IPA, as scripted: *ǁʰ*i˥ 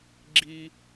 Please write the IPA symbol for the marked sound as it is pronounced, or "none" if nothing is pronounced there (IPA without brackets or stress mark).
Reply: ɡ͡ǁ